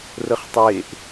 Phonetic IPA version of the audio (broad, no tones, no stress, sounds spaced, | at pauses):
r ə χ tˤ e ʔ